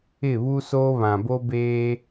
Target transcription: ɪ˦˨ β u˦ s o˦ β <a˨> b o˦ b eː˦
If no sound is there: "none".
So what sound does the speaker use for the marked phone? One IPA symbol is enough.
ã˨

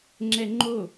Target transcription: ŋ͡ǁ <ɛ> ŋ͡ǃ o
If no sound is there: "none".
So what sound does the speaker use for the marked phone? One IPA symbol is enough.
ɛ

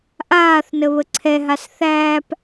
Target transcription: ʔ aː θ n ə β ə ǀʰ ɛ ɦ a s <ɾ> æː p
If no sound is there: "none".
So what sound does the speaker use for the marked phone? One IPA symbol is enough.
θ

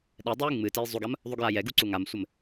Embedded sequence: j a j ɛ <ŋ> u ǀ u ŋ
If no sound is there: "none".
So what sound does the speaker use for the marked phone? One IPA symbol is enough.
ɡ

